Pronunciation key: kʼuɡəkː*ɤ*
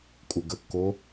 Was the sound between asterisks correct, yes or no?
no